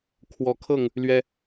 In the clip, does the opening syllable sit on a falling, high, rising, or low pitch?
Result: rising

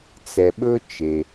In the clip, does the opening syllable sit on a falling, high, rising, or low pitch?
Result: low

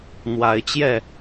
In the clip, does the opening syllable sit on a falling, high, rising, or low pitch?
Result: rising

